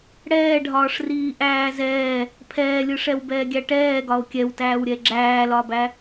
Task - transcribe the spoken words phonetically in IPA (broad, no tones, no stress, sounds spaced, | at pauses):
ɽ ɛː ɖʱ ɒː ʂ r iː ʔ æː z ɛː | pʰ ɛː lʲ ɯ ʂ ɛ w b ɛː ɡʲ æ ʈ ɛː ɡ ɒ o̯ kʲ ɛ w t æː w ɾʲ ɛ ɡ͡ǁ æː l ɒ b æ